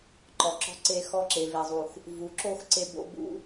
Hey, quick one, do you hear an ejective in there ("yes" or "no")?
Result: no